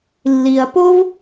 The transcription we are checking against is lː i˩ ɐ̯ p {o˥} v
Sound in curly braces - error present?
no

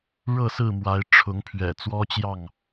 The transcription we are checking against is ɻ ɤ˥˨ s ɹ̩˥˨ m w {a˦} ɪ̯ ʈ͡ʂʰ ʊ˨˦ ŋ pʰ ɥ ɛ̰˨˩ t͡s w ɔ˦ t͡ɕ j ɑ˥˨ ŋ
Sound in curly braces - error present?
yes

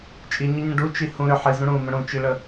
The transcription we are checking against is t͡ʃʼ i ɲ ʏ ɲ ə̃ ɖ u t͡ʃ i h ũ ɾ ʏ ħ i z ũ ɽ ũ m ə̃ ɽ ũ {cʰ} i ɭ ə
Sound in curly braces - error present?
yes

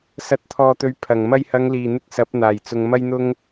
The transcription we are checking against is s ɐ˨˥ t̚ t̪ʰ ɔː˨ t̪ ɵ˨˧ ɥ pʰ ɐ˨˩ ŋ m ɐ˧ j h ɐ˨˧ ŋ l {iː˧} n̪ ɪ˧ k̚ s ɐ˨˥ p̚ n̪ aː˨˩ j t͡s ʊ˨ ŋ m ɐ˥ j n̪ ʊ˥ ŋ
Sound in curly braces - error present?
yes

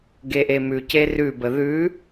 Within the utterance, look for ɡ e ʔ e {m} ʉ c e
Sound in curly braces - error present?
no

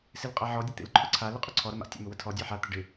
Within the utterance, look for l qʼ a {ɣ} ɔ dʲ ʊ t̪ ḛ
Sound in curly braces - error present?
yes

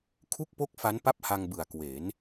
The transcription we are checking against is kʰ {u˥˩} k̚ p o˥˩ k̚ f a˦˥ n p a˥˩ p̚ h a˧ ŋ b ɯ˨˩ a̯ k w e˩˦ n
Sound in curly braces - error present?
no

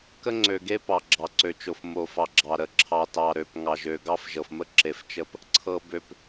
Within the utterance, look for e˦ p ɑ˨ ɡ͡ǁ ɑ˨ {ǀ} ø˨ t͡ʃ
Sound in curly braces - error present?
no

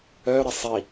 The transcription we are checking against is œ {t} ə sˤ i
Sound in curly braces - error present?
yes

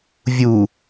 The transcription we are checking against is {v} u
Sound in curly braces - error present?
yes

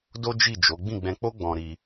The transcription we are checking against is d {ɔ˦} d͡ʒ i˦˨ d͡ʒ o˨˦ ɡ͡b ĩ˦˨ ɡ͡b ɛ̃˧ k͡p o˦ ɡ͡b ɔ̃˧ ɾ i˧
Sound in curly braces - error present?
yes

